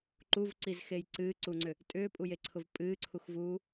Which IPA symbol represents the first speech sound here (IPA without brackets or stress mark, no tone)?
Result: ǃ